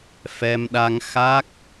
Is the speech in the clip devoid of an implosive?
no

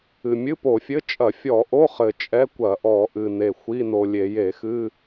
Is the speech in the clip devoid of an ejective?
no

